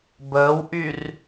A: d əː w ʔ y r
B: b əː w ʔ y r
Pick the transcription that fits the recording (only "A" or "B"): B